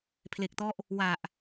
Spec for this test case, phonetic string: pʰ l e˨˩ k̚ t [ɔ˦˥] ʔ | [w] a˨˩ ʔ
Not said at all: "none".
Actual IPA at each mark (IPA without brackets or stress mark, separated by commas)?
ɔ˦˥, w